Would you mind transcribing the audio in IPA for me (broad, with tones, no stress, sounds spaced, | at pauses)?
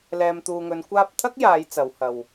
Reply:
l ɛː˨ m t̪ uː˨ ŋ ɵ˨˧ n kʷ aː˥ p̚ t̪ʰ ɐ˥ k̚ j aː˨˧ j t͡s ɐ˨˧ w h ɐ˨ w